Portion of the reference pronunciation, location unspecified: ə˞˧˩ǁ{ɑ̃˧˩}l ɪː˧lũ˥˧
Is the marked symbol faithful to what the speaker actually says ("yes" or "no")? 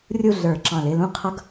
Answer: yes